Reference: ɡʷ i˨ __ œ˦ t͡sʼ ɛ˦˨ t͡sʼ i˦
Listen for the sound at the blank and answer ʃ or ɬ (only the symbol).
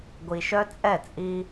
ʃ